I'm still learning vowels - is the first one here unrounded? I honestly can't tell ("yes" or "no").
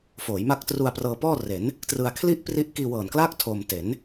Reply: no